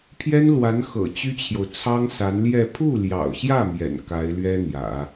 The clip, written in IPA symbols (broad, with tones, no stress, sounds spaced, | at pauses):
pʰ j ɛ˥ n l w a˧˥ n x ɤ̰˨˩ t͡ɕ y˥ t͡ɕʰ j o˨ ʊ̯ t͡sʰ ɑ˥ ŋ s a˧˥ n l j ɛ˥˧ pʰ u˥˩ l j ɑ̰˨˩ ʊ̯ ɕ j ä˥˩ m j ɛ̰˨˩ n k a˧˥ ɪ̯ l ɥ ɛ˥ n̪ j ä̰˨˩˦